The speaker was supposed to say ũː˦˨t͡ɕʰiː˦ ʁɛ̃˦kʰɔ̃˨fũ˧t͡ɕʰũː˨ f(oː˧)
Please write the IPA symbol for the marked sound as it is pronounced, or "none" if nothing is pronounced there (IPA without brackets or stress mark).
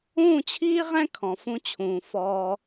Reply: ɔː˧